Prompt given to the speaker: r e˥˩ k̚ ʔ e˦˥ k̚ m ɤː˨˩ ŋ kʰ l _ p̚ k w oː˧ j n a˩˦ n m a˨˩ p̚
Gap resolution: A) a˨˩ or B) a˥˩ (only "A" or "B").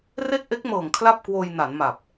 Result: B